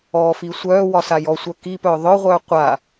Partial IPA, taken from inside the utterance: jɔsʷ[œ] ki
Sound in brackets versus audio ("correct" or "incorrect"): correct